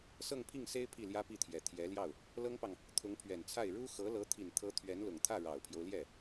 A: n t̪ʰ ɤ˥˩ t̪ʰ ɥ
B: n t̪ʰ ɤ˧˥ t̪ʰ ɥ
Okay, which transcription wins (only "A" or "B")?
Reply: B